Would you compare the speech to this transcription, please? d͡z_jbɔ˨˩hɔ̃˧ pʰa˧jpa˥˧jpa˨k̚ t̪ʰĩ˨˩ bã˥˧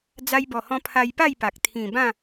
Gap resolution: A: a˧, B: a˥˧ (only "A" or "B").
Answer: A